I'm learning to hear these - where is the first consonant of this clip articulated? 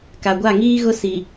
velum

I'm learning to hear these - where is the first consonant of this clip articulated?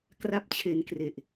velum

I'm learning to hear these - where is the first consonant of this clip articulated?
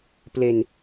lips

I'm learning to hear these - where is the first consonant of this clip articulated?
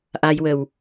throat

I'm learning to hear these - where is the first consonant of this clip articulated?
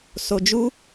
tongue tip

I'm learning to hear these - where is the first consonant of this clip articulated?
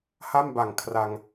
throat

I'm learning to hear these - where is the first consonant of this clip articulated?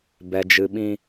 lips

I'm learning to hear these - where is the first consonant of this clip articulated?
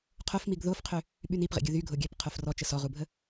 uvula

